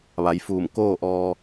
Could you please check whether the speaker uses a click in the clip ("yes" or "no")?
no